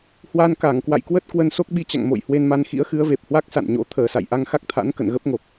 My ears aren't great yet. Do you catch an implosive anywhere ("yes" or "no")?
yes